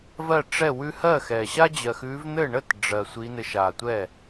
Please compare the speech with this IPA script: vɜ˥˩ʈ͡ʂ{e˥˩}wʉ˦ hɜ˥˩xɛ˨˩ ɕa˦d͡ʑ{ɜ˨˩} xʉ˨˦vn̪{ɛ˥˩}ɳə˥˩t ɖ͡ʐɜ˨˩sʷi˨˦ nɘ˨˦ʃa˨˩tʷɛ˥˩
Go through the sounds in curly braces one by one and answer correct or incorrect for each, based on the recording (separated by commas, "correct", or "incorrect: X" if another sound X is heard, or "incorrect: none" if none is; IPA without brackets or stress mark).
incorrect: ɛ˥˩, correct, incorrect: ɘ˥˩